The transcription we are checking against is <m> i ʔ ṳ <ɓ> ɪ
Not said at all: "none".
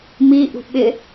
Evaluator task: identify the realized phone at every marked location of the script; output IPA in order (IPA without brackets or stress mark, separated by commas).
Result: m, ɓ